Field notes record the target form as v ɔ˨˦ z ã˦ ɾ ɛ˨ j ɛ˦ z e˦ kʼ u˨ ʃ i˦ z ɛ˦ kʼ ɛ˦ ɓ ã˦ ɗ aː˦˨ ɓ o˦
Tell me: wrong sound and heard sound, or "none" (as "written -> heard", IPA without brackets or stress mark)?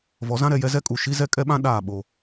e˦ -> ɛ˦